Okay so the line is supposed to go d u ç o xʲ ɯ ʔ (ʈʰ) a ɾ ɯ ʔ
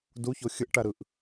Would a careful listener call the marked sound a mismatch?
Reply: yes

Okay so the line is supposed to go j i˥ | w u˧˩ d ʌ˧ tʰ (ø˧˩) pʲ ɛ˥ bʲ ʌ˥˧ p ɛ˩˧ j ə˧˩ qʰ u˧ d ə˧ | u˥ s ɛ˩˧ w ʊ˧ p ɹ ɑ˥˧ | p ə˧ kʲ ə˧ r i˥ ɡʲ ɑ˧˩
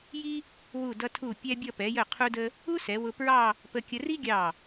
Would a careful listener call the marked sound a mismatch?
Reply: yes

